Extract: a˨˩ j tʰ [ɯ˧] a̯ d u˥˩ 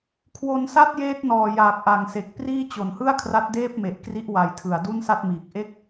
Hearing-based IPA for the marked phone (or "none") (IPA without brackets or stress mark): ɯ˨˩